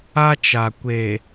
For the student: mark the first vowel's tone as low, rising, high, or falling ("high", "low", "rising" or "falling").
high